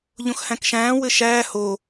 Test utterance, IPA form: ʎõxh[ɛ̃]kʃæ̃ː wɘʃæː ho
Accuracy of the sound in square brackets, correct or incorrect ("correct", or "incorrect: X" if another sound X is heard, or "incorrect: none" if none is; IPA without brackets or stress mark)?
incorrect: æ̃